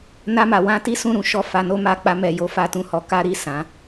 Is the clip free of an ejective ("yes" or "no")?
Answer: yes